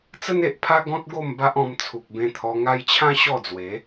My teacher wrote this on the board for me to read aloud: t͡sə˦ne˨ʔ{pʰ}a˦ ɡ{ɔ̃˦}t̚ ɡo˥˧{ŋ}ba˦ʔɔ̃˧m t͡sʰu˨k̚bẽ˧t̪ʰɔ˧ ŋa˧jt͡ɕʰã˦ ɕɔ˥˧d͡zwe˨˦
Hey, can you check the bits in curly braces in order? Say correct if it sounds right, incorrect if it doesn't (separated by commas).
correct, correct, incorrect